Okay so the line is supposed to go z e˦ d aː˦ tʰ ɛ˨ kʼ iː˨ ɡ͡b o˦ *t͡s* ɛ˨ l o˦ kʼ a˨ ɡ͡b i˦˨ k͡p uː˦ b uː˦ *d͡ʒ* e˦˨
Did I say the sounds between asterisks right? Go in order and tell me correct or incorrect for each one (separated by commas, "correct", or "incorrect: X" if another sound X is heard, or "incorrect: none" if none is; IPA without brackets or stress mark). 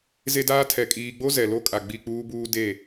incorrect: z, incorrect: d